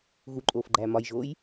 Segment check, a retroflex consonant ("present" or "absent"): absent